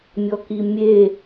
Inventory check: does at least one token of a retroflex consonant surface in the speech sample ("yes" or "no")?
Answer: no